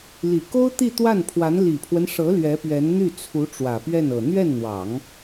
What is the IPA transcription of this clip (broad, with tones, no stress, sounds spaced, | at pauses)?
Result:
l i˨˩ k o˥ ʊ̯ t̪ i˥˧ t̪ w a˥˩ n pʰ w a˧˥ n l i˨˩ pʰ w ə˦ n ʂ ɤ˧˥ l ɥ ɛ˧˥ p ɥ ɛ˧˥ n n̪ y˥˩ t͡sʰ u˧˥ ʈ͡ʂ w ä˨˩ p ɥ ɛ˥˩ n ɤ˨˩ n̪ ɥ ɛ˥˩ n n̪ w ɑ˨˩˦ ŋ